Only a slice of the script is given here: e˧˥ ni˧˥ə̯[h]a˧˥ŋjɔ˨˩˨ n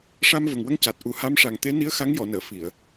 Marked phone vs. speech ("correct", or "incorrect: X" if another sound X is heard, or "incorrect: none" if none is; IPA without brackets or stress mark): incorrect: x